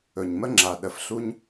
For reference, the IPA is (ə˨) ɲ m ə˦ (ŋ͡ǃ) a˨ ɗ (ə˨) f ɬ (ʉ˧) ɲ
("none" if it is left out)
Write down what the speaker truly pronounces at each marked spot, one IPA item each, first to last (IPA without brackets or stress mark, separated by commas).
ɵ˨, ŋ͡ǁ, ə˨, u˧